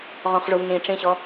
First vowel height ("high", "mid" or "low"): mid